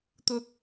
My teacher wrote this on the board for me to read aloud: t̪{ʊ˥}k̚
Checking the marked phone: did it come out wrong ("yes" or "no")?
no